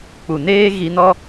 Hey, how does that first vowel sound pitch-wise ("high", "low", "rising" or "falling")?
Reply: low